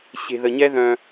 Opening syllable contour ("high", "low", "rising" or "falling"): low